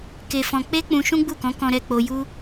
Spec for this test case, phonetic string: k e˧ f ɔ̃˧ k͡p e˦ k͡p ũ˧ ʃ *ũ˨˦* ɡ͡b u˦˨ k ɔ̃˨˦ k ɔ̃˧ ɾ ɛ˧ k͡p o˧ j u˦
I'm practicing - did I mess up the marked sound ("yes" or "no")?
yes